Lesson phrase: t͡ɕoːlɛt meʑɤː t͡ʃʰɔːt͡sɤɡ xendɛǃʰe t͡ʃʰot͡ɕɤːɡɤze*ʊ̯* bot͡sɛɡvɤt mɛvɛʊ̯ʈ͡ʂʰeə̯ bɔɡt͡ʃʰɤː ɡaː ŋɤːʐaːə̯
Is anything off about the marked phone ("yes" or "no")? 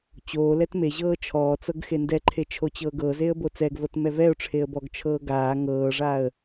yes